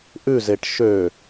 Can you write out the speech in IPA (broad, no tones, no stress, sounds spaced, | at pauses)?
ʔ ʉ z e ʈ ʃ ø